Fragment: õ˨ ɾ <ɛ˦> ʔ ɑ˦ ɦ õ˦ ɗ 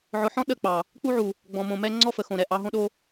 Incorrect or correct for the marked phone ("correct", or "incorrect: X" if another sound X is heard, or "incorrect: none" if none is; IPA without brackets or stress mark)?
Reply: incorrect: ɛ˨